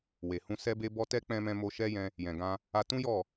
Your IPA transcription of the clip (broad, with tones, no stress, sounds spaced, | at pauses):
w e˨ h ũ˧ s ɛ˧ b e˧ b ɔ˧ t ɛ˦ k͡p ɛ̃˧ m ɛ̃˧ m o˧ ʃ ɛ˦ j ɛ̃˧ | j ɛ̃˨ ɡ ã˧ | a˧ t ũ˦ j ɔ˦˨